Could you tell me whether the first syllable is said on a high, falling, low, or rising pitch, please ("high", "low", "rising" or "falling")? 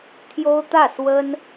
high